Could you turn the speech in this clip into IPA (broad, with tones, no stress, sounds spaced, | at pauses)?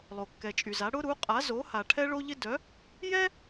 lˠ o˩ kː ɛ˩ t͡ʃʼ y˩ z a˩˥ ɽ ʊ˥ ɾ u˩˥ qʼ a˩˥ z o˩˥ h a˩ ʈʰ ɛ˥ ɭ o˥ ʎ ɪ˥ d œ˩˥ | j ɛ˥